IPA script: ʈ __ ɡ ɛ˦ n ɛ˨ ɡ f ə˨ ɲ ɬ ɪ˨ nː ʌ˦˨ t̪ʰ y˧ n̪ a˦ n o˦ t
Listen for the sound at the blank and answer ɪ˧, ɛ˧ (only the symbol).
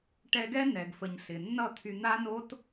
ɛ˧